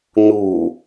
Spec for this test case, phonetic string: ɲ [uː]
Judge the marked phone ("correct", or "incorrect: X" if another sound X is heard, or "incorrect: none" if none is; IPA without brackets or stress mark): correct